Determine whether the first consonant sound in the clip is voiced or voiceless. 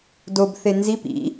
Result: voiced